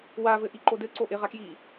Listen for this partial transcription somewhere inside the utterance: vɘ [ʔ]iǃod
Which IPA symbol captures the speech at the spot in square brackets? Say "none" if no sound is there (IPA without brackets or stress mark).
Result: ʔ